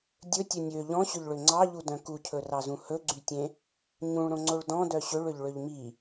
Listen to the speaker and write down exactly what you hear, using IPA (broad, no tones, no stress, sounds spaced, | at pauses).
dʲ ɵ tʲ ɵ nʲ ø ʎ ɔ̃ ɕ ɵ ʎ ɭ ø ŋ͡ǀ ɑ ʎ u d œ̃ k u cʰ ɵ r ɑ z ũ h ɵ ɡ͡ǀ y tʲ ẽ | ɲ ũ ɭ ɾ õ ŋ͡ǀ o ɭ d ɔ̃ d œ ɕ ø ɭ ø ʎ ɭ ø ʎ m i